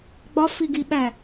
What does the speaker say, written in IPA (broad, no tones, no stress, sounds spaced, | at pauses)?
ɡ͡b ɒ f i ɡ i ɓ æ